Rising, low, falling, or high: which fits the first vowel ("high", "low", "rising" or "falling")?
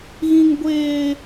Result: high